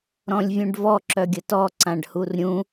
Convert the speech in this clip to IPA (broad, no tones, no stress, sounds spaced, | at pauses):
ɾ ɔ̃ lʲ vʲ ũ ɖ v ɔ ǁ œ ɡʲ ə t ɔ ǀ ã ɖ h u r ɾʲ ũ